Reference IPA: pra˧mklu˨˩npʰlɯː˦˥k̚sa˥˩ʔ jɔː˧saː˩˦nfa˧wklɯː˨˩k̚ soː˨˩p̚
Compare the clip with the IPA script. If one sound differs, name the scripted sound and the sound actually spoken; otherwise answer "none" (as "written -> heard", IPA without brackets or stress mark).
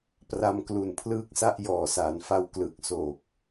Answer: ɔː˧ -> ɔː˨˩